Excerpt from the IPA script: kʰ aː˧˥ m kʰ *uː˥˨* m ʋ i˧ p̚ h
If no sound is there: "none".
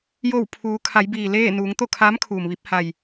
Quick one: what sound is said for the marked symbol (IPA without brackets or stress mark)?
uː˩